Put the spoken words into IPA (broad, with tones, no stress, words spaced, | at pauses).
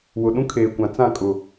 wʊ˨ɗũ˦kʰeː˨kʷã˨ t͡sã˦˨kʼʊ˨